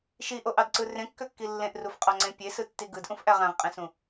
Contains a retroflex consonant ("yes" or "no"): no